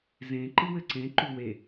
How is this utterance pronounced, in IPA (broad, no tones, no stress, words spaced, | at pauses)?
zẽ ǃɨwɘǀẽ ǃuwe